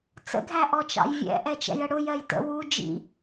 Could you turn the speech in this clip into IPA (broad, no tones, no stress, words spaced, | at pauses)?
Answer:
t͡sə̰ɡʱæʔɔt͡ʃɑ̰j vʲɛ̰ ʔɛt͡ʃɛ̰jəɽʊ jɜjtə̰ wu d͡ʒḭ